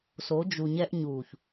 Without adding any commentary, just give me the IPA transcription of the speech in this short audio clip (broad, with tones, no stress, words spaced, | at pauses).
so˨˦d͡ʒu˨ɲɛ˦ʔ ɲuː˨ç